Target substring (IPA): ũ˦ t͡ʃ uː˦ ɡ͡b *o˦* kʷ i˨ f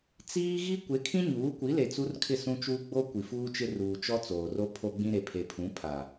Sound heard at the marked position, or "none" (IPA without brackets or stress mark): o˦